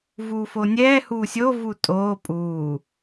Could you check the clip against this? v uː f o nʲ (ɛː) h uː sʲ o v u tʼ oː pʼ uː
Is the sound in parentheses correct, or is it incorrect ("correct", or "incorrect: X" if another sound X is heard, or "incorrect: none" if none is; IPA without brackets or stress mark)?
correct